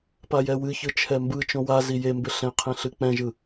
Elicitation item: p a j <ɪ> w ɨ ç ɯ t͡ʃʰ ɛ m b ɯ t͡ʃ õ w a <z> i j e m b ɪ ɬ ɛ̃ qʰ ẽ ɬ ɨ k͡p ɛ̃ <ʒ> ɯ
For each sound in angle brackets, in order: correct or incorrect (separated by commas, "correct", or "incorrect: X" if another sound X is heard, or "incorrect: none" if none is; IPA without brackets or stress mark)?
incorrect: ɛ, correct, correct